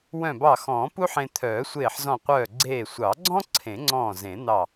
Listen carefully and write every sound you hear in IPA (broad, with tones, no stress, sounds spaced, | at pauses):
w œ̃˧˩ b ɑ˧˩ x ɔ̃ː˨˩˦ p u˥ ħ ẽ˧ t̪ʰ œː˨˩˦ sʷ eː˧˩ ħ z ɔ̃˧˩ qʷ œː˧˩ ɡ͡ǀ eː˧˩ sʷ ɑ˨˩˦ ɡ͡ǀ ɔ̃˥ ǀʰ ẽ˨˩˦ ŋ͡ǀ ɔ̃ː˧˩ z ẽ˨˩˦ n̪ ɑ˧˩